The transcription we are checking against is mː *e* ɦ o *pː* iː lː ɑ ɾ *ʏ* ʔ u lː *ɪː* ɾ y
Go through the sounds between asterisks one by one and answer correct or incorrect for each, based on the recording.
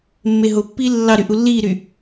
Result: correct, correct, incorrect: y, incorrect: iː

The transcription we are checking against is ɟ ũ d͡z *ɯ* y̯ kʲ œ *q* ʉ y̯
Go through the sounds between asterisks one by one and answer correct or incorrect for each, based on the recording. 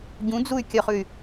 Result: incorrect: u, incorrect: χ

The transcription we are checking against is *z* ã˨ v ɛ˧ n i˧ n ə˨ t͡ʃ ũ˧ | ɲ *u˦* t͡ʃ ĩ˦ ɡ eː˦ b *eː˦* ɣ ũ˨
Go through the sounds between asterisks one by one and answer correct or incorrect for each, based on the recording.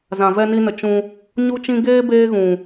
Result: correct, correct, correct

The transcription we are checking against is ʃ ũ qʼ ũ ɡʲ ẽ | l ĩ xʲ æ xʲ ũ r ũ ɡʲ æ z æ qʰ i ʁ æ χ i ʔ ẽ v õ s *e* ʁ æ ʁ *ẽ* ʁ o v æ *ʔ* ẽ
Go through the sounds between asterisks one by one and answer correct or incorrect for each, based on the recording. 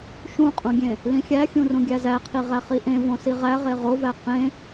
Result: incorrect: i, incorrect: e, incorrect: q

